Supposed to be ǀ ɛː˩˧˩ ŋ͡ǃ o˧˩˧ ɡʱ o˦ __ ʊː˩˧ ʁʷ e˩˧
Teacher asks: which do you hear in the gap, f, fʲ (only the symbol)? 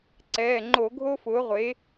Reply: f